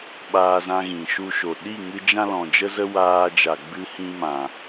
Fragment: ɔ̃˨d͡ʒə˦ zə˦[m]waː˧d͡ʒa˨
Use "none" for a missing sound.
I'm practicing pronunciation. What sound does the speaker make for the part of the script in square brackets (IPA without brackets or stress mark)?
none